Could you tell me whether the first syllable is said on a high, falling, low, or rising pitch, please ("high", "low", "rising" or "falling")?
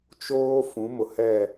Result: high